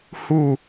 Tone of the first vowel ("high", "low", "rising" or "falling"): falling